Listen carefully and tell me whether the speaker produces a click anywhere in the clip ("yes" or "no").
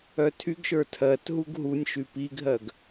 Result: no